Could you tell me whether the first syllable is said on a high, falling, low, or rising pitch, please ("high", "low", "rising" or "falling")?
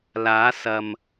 rising